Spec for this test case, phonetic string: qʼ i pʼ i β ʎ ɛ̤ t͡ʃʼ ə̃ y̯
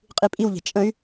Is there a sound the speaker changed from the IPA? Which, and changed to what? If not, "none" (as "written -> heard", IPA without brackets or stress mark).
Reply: β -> w